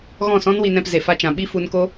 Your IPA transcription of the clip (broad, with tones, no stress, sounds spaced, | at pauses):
ɣ ɔ̃˦˨ s ɔ̃˦ n w i˧ n ɛ̃˧ p z e˨ f a˧ t͡ʃ ã˨ ɓ i˦ f u˧ n k o˦